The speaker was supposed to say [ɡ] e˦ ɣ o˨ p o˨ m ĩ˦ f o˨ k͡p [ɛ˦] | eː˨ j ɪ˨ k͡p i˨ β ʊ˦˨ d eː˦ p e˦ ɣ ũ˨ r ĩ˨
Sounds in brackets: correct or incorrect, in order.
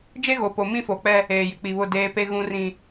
incorrect, correct

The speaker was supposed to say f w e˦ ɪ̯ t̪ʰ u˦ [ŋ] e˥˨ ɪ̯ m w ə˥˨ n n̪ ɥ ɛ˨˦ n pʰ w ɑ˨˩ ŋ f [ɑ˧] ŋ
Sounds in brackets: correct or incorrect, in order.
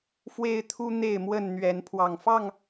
incorrect, incorrect

